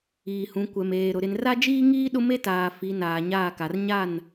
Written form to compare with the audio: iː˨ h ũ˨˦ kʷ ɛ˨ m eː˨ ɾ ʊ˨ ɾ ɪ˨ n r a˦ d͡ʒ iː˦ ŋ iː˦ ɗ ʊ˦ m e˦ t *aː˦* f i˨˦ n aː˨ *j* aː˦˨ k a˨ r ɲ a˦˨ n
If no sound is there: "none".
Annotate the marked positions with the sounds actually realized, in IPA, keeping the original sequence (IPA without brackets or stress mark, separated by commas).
aː˨, ɲ